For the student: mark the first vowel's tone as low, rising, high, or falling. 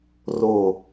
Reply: falling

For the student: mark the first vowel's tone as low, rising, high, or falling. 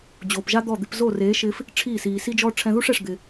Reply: low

